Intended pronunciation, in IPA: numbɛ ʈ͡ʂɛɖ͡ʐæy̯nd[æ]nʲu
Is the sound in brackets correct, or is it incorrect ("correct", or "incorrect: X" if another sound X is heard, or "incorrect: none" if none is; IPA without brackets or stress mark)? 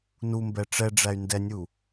incorrect: ɛ